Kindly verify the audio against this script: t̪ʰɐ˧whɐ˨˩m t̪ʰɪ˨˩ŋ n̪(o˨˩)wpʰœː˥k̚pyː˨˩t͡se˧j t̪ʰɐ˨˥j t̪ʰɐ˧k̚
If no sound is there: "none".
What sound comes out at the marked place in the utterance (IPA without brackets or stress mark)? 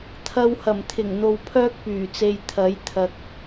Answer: o˧